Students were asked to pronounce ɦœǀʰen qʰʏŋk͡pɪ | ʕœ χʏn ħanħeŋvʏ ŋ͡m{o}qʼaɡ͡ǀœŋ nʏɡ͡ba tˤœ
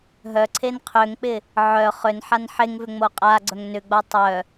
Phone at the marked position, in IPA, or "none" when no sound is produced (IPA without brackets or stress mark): o